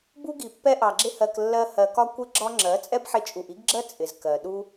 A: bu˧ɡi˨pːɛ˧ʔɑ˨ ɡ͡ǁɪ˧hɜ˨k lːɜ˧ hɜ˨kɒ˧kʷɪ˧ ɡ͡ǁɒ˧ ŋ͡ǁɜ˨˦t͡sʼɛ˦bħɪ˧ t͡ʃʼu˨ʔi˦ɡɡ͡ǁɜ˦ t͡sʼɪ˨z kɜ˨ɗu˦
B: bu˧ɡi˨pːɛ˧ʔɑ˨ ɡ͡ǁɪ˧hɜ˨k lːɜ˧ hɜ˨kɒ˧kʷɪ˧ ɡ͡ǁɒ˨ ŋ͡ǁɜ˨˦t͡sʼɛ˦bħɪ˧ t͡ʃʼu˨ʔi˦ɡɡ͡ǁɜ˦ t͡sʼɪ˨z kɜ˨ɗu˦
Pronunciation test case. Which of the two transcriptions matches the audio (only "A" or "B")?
A